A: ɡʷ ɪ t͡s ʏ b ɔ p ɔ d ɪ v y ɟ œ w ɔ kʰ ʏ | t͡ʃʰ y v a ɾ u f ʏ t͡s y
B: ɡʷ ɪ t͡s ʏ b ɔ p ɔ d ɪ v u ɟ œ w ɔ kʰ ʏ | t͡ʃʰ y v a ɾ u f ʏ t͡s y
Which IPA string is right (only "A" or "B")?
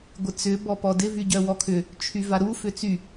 A